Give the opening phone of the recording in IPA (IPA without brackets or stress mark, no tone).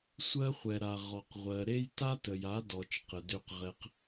sʷ